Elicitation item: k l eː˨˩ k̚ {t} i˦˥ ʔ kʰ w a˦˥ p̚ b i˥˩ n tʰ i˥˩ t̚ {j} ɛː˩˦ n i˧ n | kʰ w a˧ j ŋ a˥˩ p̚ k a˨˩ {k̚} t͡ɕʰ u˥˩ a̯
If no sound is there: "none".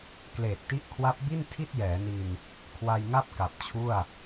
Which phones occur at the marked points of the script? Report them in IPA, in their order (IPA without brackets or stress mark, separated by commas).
t, j, p̚